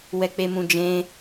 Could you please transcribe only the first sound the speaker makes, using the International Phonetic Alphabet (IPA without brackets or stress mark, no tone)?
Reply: w